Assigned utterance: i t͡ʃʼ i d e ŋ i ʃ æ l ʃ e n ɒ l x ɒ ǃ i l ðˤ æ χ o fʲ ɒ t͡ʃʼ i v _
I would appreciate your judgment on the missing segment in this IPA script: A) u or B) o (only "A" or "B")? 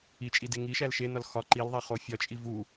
A